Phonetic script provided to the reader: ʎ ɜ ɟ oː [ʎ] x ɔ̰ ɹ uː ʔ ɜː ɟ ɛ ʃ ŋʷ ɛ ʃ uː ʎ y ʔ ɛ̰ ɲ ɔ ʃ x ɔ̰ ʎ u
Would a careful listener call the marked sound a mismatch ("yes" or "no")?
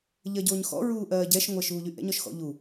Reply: yes